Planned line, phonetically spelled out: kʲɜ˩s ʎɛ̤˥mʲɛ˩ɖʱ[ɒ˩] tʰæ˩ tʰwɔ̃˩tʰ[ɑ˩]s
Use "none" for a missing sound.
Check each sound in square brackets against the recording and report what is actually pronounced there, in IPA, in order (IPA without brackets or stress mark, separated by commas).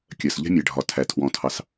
ɒ˩, ɑ˩